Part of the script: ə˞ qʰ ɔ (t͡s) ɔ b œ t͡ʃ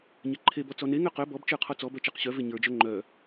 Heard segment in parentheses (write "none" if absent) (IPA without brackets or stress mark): t͡s